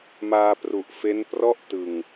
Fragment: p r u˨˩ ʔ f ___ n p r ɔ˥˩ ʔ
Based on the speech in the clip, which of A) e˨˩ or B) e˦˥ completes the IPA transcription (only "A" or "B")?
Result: B